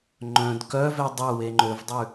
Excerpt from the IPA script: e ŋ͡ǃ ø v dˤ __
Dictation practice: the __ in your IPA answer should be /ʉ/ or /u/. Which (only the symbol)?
ʉ